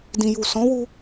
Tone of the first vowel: low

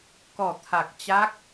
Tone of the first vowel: low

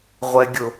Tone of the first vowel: low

